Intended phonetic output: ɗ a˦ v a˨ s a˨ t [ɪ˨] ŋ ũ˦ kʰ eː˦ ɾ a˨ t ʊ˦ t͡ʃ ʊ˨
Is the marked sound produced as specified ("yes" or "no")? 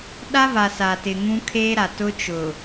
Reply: yes